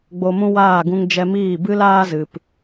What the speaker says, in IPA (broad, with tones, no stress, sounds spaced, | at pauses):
ɡ͡b o˧ m ũ˦ w aː˦˨ ɡ ũ˧ ŋ d͡ʒ ɛ˧ m iː˦˨ b ɨ˦ l aː˦ z ɨ˨ p